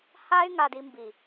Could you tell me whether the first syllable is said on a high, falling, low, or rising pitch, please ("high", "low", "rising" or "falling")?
high